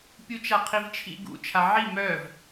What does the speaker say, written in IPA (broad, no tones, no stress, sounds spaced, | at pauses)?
pʲ u t͡ʃ a qʰ i v t͡ʃʰ ḭ ɡ ṵ t͡ʃʰ a ʕ i m œ v